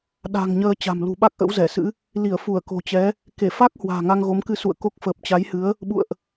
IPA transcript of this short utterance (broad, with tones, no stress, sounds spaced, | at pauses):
ɗ a̤˨˩ ŋ ɲ əː˧ t͡ɕ a̤˨˩ m l ṳ˨˩ ɓ a˦˥ k̚ ʔ ə̰˧˥ w z ɛ˧˩ s ɨ̰˧˥ | l i˧˩ ə̯ f u˧˩ ə̯ k o̤˨˩ t͡ɕ ɛ˨˦ | k e˧˩ f a˦˥ k̚ h w a̤ː˨˩ ŋ a˧ ŋ ɣ o˨˦ m k ɨ˧ s ṵ˧˨ ə̯ k o˦˥ k̚ f əː˨˩ p̚ t͡ɕ a˨˦ j h ɨ˨˦ ə̯ | ɓ ṵ˧˨ ə̯ ʔ